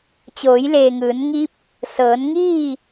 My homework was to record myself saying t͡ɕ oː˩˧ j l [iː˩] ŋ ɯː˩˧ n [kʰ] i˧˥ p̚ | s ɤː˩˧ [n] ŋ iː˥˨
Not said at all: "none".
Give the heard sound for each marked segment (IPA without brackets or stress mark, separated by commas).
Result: eː˩, ŋ, n